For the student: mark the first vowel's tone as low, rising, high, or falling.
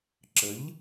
rising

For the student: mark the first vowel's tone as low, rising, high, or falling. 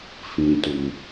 low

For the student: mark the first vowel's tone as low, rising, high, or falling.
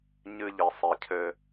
high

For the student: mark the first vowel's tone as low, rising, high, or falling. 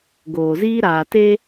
low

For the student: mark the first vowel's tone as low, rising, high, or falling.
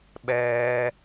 low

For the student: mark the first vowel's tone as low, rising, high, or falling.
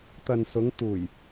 low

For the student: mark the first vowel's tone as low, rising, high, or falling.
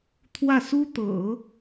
falling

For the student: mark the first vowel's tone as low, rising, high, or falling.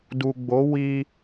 low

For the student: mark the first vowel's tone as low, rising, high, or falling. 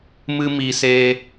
high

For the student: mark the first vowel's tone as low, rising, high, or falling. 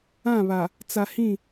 falling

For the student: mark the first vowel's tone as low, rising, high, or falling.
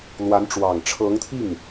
rising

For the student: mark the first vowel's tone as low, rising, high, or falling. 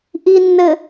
low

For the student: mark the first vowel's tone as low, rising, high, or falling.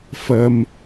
low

